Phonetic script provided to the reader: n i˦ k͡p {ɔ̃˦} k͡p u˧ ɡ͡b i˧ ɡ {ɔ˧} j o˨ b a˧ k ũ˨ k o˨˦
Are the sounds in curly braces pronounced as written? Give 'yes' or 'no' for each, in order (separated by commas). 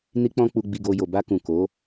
yes, no